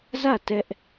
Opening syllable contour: falling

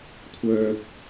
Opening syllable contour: high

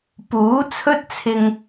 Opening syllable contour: rising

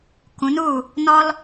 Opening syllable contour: rising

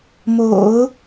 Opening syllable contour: low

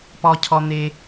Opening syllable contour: low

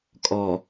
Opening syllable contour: low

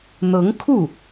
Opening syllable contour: rising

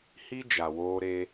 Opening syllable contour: high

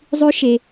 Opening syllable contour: high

